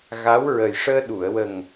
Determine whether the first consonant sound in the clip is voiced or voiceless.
voiced